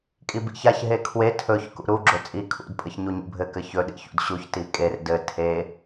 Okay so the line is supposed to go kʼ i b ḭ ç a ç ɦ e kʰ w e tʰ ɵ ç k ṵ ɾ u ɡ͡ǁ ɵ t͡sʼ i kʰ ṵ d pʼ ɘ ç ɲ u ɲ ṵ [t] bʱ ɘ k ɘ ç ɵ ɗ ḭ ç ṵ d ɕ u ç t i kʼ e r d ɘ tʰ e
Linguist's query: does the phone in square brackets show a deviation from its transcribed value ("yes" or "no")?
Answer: yes